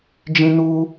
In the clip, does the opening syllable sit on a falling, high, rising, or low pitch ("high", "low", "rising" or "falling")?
high